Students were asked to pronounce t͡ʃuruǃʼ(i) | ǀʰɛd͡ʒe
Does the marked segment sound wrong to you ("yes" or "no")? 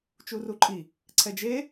no